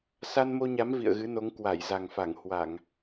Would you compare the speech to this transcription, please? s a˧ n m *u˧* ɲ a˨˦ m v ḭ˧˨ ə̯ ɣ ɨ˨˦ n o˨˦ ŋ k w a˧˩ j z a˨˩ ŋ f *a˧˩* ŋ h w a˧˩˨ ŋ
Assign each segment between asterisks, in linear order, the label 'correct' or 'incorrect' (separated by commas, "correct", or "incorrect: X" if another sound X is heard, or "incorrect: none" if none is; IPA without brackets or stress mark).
incorrect: o˧, correct